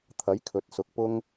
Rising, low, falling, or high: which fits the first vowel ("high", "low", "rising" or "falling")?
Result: rising